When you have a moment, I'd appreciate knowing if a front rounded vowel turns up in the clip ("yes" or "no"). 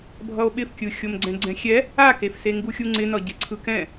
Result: no